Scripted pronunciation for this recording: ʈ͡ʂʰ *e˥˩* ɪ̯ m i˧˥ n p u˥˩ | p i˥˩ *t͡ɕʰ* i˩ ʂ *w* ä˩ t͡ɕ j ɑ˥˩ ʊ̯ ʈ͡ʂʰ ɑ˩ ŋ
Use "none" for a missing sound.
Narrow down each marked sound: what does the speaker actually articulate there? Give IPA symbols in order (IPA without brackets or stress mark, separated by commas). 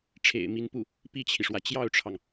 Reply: ḛ˨˩, t͡ɕʰ, w